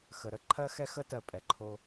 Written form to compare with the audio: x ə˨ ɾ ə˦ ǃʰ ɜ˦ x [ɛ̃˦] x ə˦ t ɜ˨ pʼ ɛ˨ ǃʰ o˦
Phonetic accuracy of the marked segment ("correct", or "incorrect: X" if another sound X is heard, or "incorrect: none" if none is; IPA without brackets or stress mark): incorrect: ɛ˦